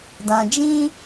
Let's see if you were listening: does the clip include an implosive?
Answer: no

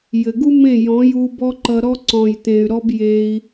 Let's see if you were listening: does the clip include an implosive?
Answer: no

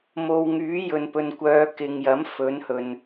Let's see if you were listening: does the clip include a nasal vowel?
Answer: no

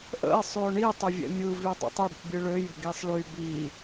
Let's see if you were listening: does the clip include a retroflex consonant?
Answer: yes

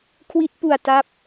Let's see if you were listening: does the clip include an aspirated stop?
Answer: yes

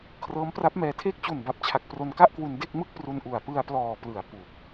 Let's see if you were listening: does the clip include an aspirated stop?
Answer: yes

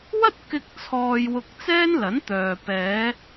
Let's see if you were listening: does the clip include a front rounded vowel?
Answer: yes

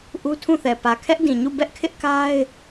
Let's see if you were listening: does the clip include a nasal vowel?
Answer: yes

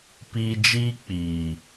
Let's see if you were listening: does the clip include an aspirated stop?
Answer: no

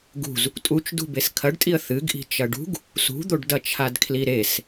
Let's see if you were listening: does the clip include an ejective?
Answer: yes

